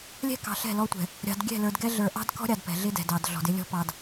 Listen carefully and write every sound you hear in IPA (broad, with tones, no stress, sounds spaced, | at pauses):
lʲ ɛ̤˦ k ɑ̤˨ ɬ ɛ̤˦˨ l ɔ˦ tʷ ɛ̤˨ | ɾʲ ɑ̤˨ d ɡʲ ɛ̤˦˨ l ə˞˨ d ɡ ɛ˦ ɮ ə˞˨ ʔ ɑ̤˦ d k ɔ̤˦ ɾʲ ɑ˨ d p ɛ̤˨ ɮ ɪ˦ d ɛ̤˨ d ɑ˨ d ɮ ɔ̤˨ d ɪ˦ lʲ ɔ̤˦ p ɑ˨ d